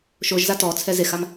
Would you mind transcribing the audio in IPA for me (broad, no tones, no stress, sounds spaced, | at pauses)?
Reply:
ʃ o ʒ z a t ɔ t͡sʰ ɛ z e x a m